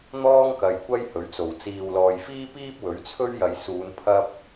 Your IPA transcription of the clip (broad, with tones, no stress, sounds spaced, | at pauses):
n̪ ɔː˥ ŋ k ɐ˨ j kʷ ɐ˥ j h ɵ˨˥ ɥ t͡s o˨˩ w t͡s iː˨ w l ɔː˨ j f iː˥ p iː˥ p̚ w ɵ˨˥ ɥ t͡sʰ ɵ˥ ɥ j ɐ˨˧ j s uː˨˧ n pʰ ɐ˥ p̚